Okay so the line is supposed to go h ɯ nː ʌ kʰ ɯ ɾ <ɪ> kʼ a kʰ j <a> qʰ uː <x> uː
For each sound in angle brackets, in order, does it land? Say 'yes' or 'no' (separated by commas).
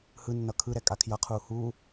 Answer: no, no, no